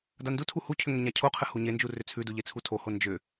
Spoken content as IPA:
d a n d u tʰ u h u cʰ ʏ ŋ ʏ ɲ a cʰ o qʰ ɘ h u ɲ e n d͡ʒ u r ʏ t͡sʰ ʉ d u ʎ e t͡sʰ u tʰ o h o n d͡ʒ ʏ

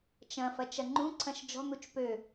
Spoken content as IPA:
t͡ʃ ɐ̃ f ɐ t͡ʃ ɐ ŋ͡ǃ ũ ǀʰ ɐ̃ ʃ d͡ʒ ɔ̤ n̪ u t͡ʃ p ø

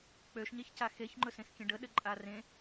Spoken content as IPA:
k͡p ø ʃ ɲ e ç c a x e ç ŋ͡ǃ ɵ s ẽ s kʲ ə̃ ɖ ə ɗ ɘ ǃʼ a r ẽ

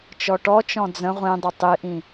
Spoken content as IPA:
t͡ʃ ɔ ʈ ɔ t͡ʃ ɔ̃ d͡z ə̃ ʁʷ ĩ dˤ ə tˤ i ʔ ĩ

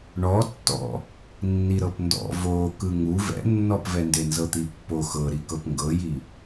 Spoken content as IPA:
ɳ ɔ tː ɔ̰ | nː i ɾ ɤ p n d ɔ̰ v o k ɯ ŋ u v ɛ̰ nː ɔ p v ɛ n d e n z ɤ t̪ i pː o x ɤ ɾ i k ɤ p ŋ ɡ ɤ j i

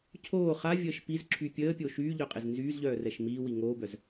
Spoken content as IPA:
cʰ oː χ a vʲ əː ʃ p i z ǁʰ y pʲ əː pʲ oː ʃ yː ʎ œ qʼ e z n z yː z ʎ œː r ɛ ʃ m iː w i ŋ oː b œ z

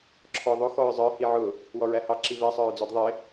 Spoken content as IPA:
ǁʰ ɔ ðˤ ʊ x ɔ ɹ zˤ ə˞ h i ʕ ʊ | w ɔ ɹ æ h ɑ ǁ i v ɛ sˤ ə˞ ɹ d͡z ɔ d ðˤ ɪ

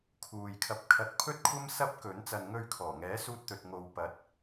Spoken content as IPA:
kʰ uː˨ j kʰ ɐ˧ p̚ kʰ ɐ˨˥ t̚ pʰ ɵ˥ t̚ kʷʰ ɐ˥ m s ɐ˥ p̚ k ɵ˨˥ n t͡s ɐ˨ n ŋ ɵ˧ ɥ kʰ ɔː˨˩ ŋ ɛː˨˥ s uː˧ t̚ t̪ ɵ˨ t̚ ŋ o˨ w p ɐ˨˥ t̚

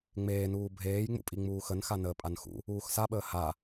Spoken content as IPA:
ŋ͡m eː n uː bʱ eː j ŋ͡m ṵ pʼ i ŋ͡m uː x ə n x a n əː pʼ a n x ṵ | uː x s a ɓ əː h a

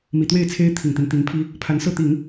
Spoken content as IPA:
m i˨˩ t̪ w e˥˩ ɪ̯ t͡sʰ e˥ ɪ̯ t̪ʰ i˨˩ ŋ t̪ i˦ n t̪ i˧˥ ŋ pʰ i˥ | pʰ a˧˥ n s ɤ˥˩ t̪ i˨˩˦ ŋ

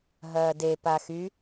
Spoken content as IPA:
ɦ ɐː d e p a x y

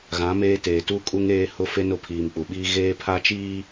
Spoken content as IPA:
ɣ ã˨˦ m eː˦ t eː˨ t u˦ kʼ u˦ ŋ eː˦ h ʊ˦ f e˦ n ʊ˨ pʰ iː˨ m k͡p u˨ ɓ iː˦ ɣ eː˦ pʰ a˦ t͡ʃ iː˦

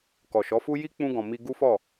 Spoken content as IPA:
k ɔ˨ ʃ ɔ˨˦ f u˦ j i˦ k͡p ũ˧ ɡ ɔ̃˨ m i˧ ɡ u˦ f ɔ˦˨

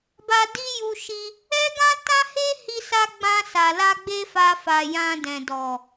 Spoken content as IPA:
b a˧ d i˦ j u˧ ʃ i˧ | ɛ˦ ɡ ã˦ t ã˦ h e˦ h i˧ s a˧ ɡ͡b ã˧ s a˨ l a˧ ɡ͡b e˦ f a˧ f a˨ j ã˧ d ɛ̃˨ d ɔ˨

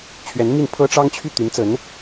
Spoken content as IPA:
t͡ɕʰ ɥ ɛ˧˥ n m i˥˩ n pʰ ɤ˥ ʈ͡ʂ ɑ˥ ŋ t͡ɕʰ y˥˩ t̪ y˧˥ n t͡s ə˧˥ n

